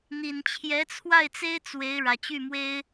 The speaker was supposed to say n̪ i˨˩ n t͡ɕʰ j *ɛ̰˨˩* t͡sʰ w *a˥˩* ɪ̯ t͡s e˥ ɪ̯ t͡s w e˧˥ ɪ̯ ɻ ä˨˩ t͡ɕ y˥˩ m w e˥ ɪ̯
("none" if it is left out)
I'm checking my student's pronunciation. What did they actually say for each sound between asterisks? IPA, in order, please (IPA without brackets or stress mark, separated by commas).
ɛ˧˥, a˥˩